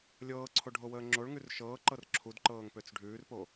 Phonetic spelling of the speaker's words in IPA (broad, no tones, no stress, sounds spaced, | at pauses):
lʲ ɤː ǀʰ o ɖʱ o w əː ŋ͡ǁ o ɭ ŋ ʉ r ʃ ɤː ǃ ɤ r ǁʰ u d ǃ ɤː ŋ p ø t͡s ɖʱ ʉː r p o